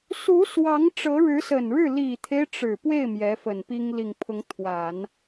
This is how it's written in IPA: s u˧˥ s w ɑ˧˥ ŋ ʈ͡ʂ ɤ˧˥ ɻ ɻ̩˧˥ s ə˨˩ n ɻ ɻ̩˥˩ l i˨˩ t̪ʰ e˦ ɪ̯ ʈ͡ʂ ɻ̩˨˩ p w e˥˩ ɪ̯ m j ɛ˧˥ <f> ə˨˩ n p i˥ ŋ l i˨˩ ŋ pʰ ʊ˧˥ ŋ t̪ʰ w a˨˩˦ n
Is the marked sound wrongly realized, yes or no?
no